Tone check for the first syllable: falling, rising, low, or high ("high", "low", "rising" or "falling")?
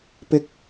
high